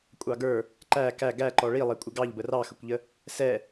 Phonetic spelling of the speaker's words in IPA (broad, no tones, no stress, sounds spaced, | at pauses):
kʷʼ ɑ ɡ ə˞ | ǃ æ k æ ɡ æ ǃ ɔ ɭ i lˠ ɛ kʷʼ ɪ ɡ ɑ ʎ b ə r ɑ x ə kʷ ʎ ə | s ɛ